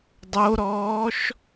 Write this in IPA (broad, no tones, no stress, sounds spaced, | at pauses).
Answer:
dˤ o ɾ ɔː ʃ